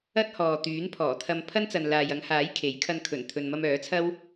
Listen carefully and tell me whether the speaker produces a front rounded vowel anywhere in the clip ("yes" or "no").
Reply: yes